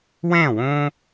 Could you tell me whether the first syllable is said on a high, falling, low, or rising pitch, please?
falling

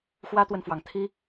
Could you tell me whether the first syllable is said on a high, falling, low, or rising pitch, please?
high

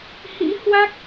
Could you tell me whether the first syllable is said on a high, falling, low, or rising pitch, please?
rising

